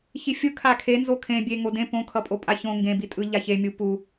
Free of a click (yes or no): yes